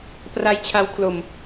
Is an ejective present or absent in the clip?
absent